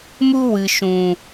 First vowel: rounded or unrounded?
rounded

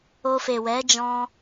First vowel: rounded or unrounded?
rounded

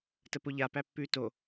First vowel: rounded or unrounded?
unrounded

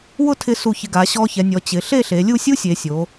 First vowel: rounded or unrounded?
rounded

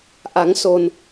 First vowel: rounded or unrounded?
unrounded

